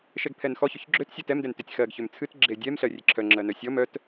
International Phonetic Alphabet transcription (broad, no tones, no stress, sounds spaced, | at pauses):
ʃ ɛ ɡ pʰ ɛ n x ɔ ç ø ç ɡ͡ǁ ø t sʲ ɜ t ɛ m d ɛ n t ø tʲ x ɜ ɡ ç ø m t͡sʰ ɨ t ɡ͡ǁ e dʲ ɛ m ɬ ɜ rʲ e ǁʰ œ ŋ͡ǁ ɜ n œ sʲ ɔ m œ t